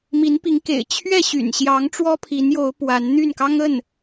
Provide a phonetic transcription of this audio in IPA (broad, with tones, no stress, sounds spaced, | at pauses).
m i˧˥ n p i˧˥ ŋ k ḛ˨˩ ɪ̯ t͡ɕʰ ɥ ɛ˥˩ ɕ y̰˨˩ n ɕ j ɑ˧˥ ŋ ʈ͡ʂ w ɔ˥ pʰ i˧˥ n j o˧˥ ʊ̯ p w a˧˥ n n̪ y˥˩ n k ɑ˥ ŋ ə˥˩ n